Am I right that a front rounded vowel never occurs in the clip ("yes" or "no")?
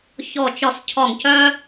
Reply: no